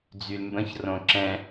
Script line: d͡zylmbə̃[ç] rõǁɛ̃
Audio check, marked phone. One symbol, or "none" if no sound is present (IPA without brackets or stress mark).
ç